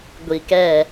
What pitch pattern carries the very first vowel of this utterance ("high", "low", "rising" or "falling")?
low